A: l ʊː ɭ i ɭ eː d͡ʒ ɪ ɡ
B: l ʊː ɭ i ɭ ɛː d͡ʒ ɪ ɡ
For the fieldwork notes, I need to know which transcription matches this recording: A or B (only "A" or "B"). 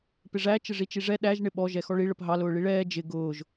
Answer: B